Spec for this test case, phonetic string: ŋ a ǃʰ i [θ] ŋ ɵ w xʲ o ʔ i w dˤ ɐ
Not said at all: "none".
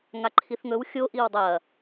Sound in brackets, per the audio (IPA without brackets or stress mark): θ